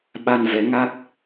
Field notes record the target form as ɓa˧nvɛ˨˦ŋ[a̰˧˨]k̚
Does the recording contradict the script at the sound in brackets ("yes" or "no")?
yes